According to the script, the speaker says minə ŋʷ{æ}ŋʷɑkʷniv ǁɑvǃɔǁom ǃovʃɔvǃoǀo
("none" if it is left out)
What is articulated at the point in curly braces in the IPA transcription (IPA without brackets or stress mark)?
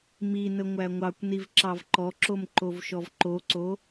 æ